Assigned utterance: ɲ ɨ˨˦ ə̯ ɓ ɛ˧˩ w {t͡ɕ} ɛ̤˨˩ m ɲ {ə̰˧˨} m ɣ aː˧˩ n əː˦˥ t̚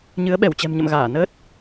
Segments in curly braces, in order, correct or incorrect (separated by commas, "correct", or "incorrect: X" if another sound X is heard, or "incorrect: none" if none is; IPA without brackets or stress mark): correct, correct